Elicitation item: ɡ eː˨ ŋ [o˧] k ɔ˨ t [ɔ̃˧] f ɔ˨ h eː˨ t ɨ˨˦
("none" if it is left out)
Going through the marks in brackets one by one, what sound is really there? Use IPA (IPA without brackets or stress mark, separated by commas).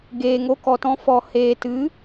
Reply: o˧, ɔ̃˧